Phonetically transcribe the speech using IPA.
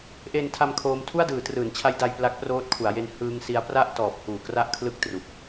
ʔ eː˧ n tʰ a˧ m kʰ oː˦˥ m tʰ u˥˩ a̯ d ɯː˩˦ t r ɯː˩˦ n t͡ɕʰ a˦˥ j d a˧ j p l a˦˥ k̚ p r oː˦˥ t̚ kʰ u˩˦ a̯ j e˧ n h ɯː˦˥ ŋ s i˦˥ a̯ p r a˥˩ ʔ t ɔː˨˩ p̚ h uː˨˩ k r a˥˩ ʔ kʰ l ɯ˥˩ k̚ t r u˨˩ k̚

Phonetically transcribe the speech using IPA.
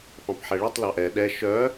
f ɑ̃ p ħ ɛ ɭ i tˤ l ɑ ʔ ɛ ɗ ɛ ʃ œ

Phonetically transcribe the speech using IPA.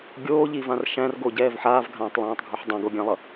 ɡʲ oː ʎ i v ã r ʃ æ̃ r ɡ o ɟ ɛː v ħ aː v ɡʱ ãː tˤ lˠ æ̃ː tˤ ɡʱ o ħ dˤ ã ɡ o ɡʲ ã lˠ ʌ

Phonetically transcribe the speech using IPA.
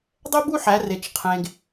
dˤ ɛ˥ b u˥ ħ æ˩˧ r e˩ t͡ʃ qʰ ẽ˩ ɡ

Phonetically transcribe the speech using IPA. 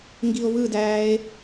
ŋ ɡ i o̯ β ɯ d æː e̯

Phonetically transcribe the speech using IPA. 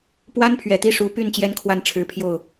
p w a˥ n pʰ ɥ ɛ˨˩ t̪ i˥˩ ʂ u˧˥ p y˥˩ n t͡ɕ j ɛ˥ n kʰ w a˥˩ n ʈ͡ʂʰ ɻ̩˧˥ pʰ j o˥˩ ʊ̯

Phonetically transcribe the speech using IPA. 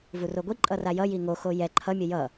v u r o ɡʷ i ǃʼ ʌ r a j ʌ j i ŋ o x o j ɛ ǃʰ ʌ mʲ ʌ j ʌ

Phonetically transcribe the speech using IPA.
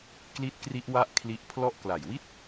k l i˦˥ t̚ k r i˦˥ ʔ w a˦˥ ʔ kʰ l i˦˥ ʔ pʰ l ɔ˥˩ ʔ k l a˨˩ j w i˥˩ t̚

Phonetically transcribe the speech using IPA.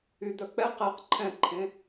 y d̪ œ k͡p ɛ q ɛ q ǃʰ ɛ̃ ǃʰ ẽ

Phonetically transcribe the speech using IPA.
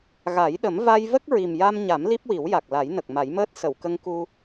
ɣ a˨˩˦ j ɗ ə˨˩˦ m v a˧ j v ə˦˥ k̚ ɹ i˨˩ m j a˧ m ɲ a˨˩˦ m l i˦˥ p̚ w i˨˩˦ w j a˨˩ k̚ l a˨˩˦ j n ə˨˩ k̚ m a˨˩˦ j m əː˦˥ t̚ s ə˨˩˨ w k ə˧ ŋ k u˧

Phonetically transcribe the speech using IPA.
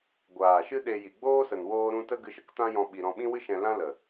ɡʷ aː˨ ʃ ɨ˦ ɗ e˧ j i˨ ɡ͡b oː˦ s ə˨ n w oː˦ ɾ ũ˦ t ə˦ ɡ ɨ˧ ʃ ə˨ k t ã˦ j ɔ̃˧ ɓ i˧ ɾ ɔ̃˧ ɓ ĩ˦ w ɨ˦ ʃ ɛ̃˧ l ã˦ l ə˨

